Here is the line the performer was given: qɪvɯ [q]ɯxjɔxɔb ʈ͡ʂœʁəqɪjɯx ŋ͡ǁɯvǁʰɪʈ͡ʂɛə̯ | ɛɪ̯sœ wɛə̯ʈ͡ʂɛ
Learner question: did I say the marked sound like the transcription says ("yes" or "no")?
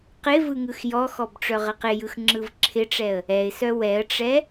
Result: no